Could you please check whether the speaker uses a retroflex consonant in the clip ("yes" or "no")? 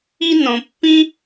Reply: no